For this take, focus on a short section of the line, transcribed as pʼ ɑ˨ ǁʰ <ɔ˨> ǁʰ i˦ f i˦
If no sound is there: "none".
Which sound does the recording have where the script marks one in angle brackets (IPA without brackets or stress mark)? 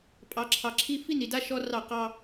ɑ˨